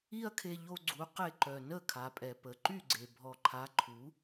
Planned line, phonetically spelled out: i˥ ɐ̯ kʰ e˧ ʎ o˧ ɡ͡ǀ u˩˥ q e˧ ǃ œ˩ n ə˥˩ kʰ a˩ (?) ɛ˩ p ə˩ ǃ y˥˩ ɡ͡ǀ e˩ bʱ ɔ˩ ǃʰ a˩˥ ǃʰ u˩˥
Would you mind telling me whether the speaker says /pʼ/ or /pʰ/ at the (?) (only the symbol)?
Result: pʼ